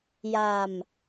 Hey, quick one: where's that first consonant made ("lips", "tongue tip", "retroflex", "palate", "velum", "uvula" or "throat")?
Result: palate